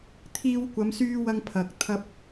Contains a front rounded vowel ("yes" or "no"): yes